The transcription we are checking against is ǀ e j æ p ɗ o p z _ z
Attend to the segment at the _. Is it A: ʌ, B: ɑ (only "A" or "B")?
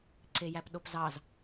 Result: B